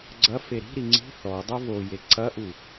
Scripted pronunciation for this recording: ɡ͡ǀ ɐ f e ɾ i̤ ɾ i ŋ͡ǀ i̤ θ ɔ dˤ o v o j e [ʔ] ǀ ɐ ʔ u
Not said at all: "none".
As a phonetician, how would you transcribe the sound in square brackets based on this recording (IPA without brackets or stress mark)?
none